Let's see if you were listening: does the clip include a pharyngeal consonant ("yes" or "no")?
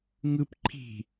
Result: no